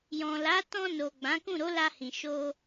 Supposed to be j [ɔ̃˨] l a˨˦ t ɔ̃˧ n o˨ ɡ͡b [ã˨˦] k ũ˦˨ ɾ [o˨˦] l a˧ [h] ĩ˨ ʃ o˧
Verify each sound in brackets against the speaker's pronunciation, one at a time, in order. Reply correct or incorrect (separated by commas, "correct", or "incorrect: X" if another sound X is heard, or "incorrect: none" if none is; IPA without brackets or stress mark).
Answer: correct, correct, correct, correct